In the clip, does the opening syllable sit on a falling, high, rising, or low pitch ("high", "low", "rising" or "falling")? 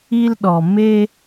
high